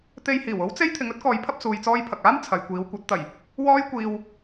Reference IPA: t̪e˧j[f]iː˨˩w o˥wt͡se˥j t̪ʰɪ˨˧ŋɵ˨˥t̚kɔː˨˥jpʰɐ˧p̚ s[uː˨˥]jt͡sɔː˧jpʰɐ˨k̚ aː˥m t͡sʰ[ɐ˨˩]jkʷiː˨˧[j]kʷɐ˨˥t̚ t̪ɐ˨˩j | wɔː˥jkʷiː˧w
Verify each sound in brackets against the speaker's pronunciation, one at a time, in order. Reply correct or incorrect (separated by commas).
incorrect, incorrect, incorrect, incorrect